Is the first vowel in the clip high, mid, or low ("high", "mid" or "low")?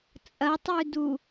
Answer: low